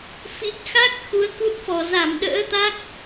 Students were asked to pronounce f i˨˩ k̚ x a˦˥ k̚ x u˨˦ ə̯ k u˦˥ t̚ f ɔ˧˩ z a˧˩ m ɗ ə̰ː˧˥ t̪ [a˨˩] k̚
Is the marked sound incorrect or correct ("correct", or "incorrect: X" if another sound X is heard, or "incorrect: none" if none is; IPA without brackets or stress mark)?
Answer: incorrect: a˦˥